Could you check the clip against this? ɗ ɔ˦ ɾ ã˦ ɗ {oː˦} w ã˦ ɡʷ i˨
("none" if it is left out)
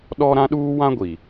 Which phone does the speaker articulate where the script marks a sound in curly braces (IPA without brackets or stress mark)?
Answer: uː˦